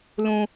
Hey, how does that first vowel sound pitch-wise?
high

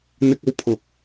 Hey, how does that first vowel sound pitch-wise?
high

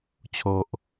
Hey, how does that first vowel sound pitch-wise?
low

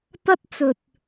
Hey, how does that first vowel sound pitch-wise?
high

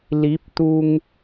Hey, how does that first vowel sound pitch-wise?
rising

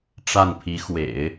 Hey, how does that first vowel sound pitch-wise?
falling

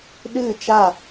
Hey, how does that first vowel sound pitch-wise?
falling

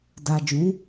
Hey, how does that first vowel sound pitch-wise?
low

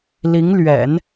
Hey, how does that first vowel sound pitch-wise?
rising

